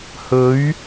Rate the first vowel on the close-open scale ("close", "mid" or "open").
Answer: mid